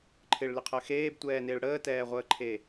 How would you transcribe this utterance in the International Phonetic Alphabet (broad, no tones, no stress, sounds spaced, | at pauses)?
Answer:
ǃʰ ɪ ɭ l ɪ qʰ ɜ x eː b tʷ ɛː n ɪː ɭ ɽ əː t ɛː ʁʷ əː ǃʰ e